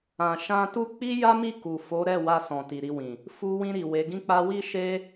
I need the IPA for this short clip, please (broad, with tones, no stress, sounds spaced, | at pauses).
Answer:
ã˨ ʃ ã˧ t u˦ k͡p i˦ j a˦ m i˦˨ k u˨ f o˨˦ ɾ ɛ˦˨ w a˧ s ɔ̃˨ t i˨ ɾ i˧ w ĩ˨ | f u˧ w ĩ˧ ɾ i˨ w e˨˦ ɡ ĩ˦ k͡p a˦ w i˦ ʃ e˦